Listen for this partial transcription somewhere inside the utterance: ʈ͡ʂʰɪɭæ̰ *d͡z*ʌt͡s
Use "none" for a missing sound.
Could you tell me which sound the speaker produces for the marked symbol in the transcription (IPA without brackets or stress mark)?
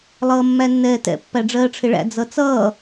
d͡z